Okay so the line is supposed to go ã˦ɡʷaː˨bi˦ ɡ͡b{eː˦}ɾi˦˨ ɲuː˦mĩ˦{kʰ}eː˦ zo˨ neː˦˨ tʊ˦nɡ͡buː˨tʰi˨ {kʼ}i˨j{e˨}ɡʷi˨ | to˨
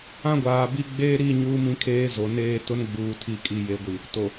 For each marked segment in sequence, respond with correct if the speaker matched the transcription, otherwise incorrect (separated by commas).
correct, correct, correct, correct